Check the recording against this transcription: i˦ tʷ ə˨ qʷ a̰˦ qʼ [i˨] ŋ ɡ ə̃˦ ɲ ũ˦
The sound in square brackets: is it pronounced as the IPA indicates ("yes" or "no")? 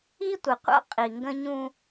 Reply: yes